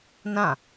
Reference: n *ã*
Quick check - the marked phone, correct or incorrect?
correct